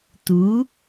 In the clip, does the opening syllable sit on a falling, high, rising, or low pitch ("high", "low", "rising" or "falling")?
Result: rising